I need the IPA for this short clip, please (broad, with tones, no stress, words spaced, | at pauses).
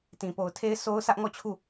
tĩ˨po˨ʊ̯tʰe˦ɪ̯ so˦ʊ̯ sä˦ʔŋɔ˦˨ t͡ɕʰu˦˨